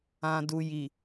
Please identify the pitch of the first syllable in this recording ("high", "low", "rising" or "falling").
low